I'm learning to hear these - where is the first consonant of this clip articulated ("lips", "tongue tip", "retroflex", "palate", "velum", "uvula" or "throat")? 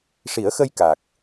retroflex